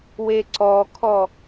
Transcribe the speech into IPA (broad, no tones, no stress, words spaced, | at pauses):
weǀɔkʰɔ